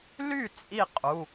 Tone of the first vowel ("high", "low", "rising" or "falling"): falling